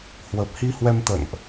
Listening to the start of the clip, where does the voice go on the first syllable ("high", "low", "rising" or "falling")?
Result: low